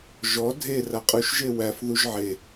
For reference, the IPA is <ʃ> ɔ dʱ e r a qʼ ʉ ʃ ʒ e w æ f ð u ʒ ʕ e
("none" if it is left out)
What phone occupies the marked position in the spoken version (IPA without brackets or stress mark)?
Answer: ʒ